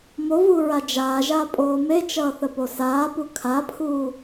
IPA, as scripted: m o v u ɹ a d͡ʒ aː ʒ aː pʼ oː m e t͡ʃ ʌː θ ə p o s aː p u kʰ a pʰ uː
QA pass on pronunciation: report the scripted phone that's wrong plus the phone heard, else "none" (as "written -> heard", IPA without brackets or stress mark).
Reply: none